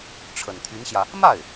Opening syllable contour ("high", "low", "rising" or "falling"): low